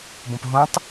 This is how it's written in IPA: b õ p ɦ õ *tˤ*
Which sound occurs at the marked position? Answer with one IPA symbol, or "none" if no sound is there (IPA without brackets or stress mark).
tˤ